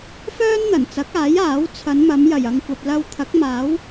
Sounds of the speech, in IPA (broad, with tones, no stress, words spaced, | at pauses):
fœː˥nn̪ɐ˨˩nt͡sɐ˨˥k̚aː˨˥j aː˨˥wt͡sʰɐ˨˧nmɐ˨˧m jɐ˨˩jɐ˨ŋkʷɐ˨p̚ lɐ˧wt̪ʰɐ˨˥k̚maː˨˥w